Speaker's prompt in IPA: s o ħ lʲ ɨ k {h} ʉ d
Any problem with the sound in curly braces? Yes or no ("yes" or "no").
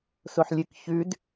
yes